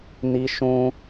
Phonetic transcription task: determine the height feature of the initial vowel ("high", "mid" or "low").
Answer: high